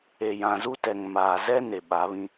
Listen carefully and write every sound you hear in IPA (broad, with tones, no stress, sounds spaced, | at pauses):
e˨ j ã˨ z u˦ t ɛ˨ ŋ m aː˨ z ɛ˦ n e˨ ɓ a˨˦ β ĩ˦